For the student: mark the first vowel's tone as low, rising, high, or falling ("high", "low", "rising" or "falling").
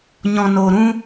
low